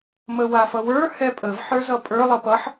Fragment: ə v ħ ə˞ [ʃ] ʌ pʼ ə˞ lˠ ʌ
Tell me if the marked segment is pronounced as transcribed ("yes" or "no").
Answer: no